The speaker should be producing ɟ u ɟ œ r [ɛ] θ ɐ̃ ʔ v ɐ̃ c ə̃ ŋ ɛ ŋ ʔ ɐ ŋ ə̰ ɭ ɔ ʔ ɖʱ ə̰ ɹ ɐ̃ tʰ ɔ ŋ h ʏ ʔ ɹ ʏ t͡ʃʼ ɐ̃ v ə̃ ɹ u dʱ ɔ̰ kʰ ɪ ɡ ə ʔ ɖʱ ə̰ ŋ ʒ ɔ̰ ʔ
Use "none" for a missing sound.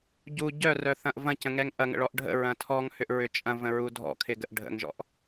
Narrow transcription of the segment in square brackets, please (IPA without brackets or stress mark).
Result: œ